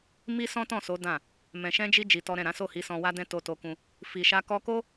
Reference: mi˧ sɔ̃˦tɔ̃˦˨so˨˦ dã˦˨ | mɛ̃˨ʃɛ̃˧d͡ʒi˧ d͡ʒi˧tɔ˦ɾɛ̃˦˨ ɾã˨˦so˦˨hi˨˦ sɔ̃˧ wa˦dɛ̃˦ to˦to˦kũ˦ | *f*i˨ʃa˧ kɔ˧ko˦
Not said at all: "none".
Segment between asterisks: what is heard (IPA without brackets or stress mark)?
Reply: f